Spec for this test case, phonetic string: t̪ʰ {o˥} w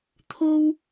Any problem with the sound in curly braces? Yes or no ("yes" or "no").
no